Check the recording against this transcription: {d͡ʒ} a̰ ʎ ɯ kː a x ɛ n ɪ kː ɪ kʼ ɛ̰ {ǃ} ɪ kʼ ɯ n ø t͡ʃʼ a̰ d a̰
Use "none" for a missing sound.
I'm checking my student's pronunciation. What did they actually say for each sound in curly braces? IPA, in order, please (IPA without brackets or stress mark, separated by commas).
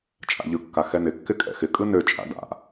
t͡ʃʼ, x